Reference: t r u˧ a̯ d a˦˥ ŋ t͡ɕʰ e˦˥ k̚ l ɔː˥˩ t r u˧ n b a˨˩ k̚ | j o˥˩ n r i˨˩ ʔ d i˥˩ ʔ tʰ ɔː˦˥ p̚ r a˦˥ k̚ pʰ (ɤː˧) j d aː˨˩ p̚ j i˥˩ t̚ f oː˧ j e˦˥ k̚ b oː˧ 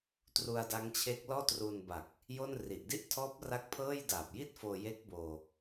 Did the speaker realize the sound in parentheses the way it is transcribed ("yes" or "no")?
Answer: no